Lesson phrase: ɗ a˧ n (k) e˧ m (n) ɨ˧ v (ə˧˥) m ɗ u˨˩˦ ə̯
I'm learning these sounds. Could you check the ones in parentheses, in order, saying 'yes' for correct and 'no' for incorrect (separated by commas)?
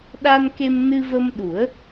yes, yes, no